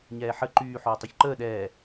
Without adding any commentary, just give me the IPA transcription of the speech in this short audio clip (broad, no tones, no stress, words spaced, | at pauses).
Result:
ɲɛːħə ǃyː ħoːtˤuçǃəː ɗɛː